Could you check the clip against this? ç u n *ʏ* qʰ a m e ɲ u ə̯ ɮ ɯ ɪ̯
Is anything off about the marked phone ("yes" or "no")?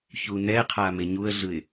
yes